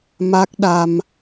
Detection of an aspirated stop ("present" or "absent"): absent